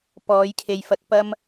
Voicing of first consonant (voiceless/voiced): voiceless